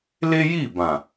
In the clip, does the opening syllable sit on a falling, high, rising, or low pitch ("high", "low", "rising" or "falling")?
high